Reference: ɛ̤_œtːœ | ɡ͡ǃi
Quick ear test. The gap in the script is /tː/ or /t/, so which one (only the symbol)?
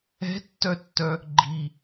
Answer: tː